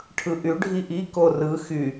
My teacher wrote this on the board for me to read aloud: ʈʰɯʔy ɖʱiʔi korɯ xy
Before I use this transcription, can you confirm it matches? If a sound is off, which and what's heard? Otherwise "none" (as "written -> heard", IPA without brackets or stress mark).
none